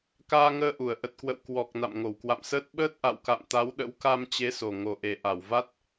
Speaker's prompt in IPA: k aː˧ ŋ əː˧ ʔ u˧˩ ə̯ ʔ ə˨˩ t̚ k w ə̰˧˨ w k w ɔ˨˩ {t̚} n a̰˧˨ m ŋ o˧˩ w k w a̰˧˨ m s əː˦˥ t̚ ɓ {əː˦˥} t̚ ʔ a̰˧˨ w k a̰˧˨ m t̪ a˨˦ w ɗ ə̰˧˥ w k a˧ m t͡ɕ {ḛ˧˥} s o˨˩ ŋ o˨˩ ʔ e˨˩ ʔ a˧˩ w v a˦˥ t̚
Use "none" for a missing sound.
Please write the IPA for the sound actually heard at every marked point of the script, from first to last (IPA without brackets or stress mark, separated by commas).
k̚, əː˦˥, e˨˦